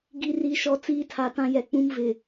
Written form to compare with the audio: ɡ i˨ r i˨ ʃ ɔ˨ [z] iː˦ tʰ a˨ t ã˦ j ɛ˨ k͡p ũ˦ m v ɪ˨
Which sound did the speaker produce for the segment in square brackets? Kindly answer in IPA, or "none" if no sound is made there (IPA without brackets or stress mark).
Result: t͡s